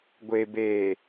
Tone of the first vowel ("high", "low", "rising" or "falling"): low